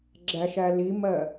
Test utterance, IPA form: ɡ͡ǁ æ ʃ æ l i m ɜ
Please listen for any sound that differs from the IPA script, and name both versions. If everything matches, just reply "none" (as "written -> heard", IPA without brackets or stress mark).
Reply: none